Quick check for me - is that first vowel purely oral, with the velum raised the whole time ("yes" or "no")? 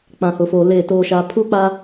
no